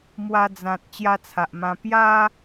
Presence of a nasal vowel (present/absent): present